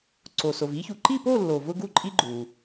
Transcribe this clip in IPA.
ǀ o˩ s o˩ v i˥ ç u˩ ǃ i˥˧ p o˥˧ lː o˩ v ʊ˥ ɡ u˥˧ ǃʼ i˥ ɡ͡ǃ u˩

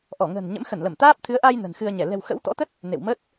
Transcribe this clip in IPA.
ʔ ɔ˧˩ ŋ ə̤ː˨˩ n ɲ ə̰˧˥ m x ə˧˩ n l ə˧˩ m t̪ aː˦˥ p̚ t̪ʰ ɨ˨˦ ə̯ ʔ a˧ j n ə̤˨˩ n x ɨ˧ ə̯ ɲ ɛ˧˩ l ɛ̤˨˩ w x ə̰˧˥ w t̪ ɔ̰˧˥ t̪ ə˦˥ t̚ | n ḛ˧˨ w m ə˦˥ t̚

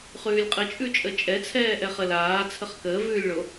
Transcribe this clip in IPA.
χ ʉː lʲ qʼ ə t͡ʃʼ ʉ t͡ʃʼ ə t͡ʃʼ ɛ t͡sʰ ɛː ʔ ɛ χ ə l aː t͡sʰ ə χ k əː v ʉː lʲ ɭ o

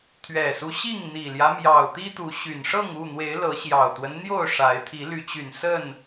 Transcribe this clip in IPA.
t̪ʰ ɥ ɛ˨˩ s u˦ ɕ i˥˨ ŋ n̪ i˨˩ l j ä˦ m j ɑ˨˩ ʊ̯ t̪ i˦ t̪ u˨˦ ɕ y˨˩ n ʂ ɤ˥˨ ŋ u˥˨ n̪ w e˨˦ ɪ̯ l ɤ˨˦ ɕ j ɑ˨˩ ʊ̯ t̪ w ə˦ n n̪ j o˥˨ ʊ̯ ʂ a˨˦ ɪ̯ t̪ʰ i˨˦ l y˨˦ t͡ɕ y˨˩ n s ə˥˨ n

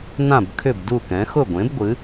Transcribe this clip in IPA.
n ã˥˨ b kʰ ʏ˥˨ b d u˥˨ k ɛ̃˨˥ x ʊ˥˨ ɡʷ ẽ˨˥ b ɡʷ ɨ˨˥

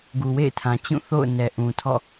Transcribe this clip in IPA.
ɡ u˨ w ḛ˦˨ ɪ̯ tʰ ã˨ t͡ɕ ũ˦˨ θ o̰˦˨ ʊ̯ n ɛ˨ ʔ ũ˨ tʰ ɔ̰˦˨

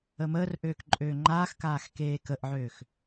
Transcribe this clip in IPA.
ə m əː r ʔ øː k ǃʼ øː ŋ͡ǃ aː x k aː x k eː k ə ʔ ʕ øː x

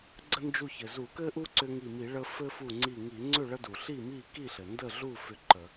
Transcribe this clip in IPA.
ɡ͡ǀ ə˦ n d͡ʒ u˧˩ ç ɘ˩ z u˧˩˧ k ɘ˦ ʔ u˦ ǀ ʏ˦ ŋ i˧˩ m i˧˩˧ ɭ ə˦ f ɘ˦ f u˧˩ ŋ͡ǀ i˧˩ ŋ i˧˩˧ ŋ͡ǀ ʏ˥˨ ɭ ə˦ d u˩ ɬ i˥˨ m i˥˨ k i˥˨ ɬ ɘ˩ n d ə˥˨ ɮ u˥˨ f ʏ˥˨ ǃ ə˧˩˧

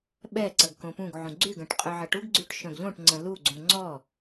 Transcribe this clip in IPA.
ɓ ɛ ǀ ɐ ɡ k õ p ũ ɡ ʕ ũ ɡ͡ǀ y ɡ ə̃ ʈ qʼ œ ʕ ɐ ʈ u ɡ ɡ͡ǀ y ʈ ʃ œ̃ ɡ ʎ õ ʈ ŋ͡ǀ ə̃ l u ɡ͡ǀ ũ ŋ͡ǀ ɔ

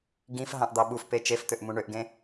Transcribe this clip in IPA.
ɡ ĩ f ɦ ɑ̃ ʔ d̪ ɑ ɓ u f p e t͡ʃ e f t̪ ø ʔ m ũ ɳ ø ʔ ɡ ẽ

